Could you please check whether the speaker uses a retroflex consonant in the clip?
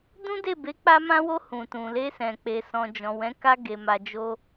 no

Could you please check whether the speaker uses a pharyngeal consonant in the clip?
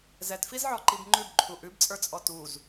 yes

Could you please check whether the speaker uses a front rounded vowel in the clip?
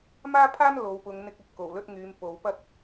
yes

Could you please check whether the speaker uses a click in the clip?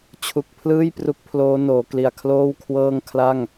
no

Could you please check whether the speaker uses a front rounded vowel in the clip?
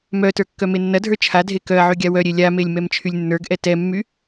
yes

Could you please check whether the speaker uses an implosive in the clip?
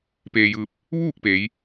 no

